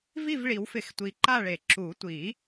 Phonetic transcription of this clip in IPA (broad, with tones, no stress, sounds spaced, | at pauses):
v i˥˨ v ɭ i˨˩˦ w f ɪ˨˩˦ x tʷ i˨˩˦ ǃ a˥˨ ɭ e˨˩˦ ǁ u˨˩˦ tʷ i˨˩˦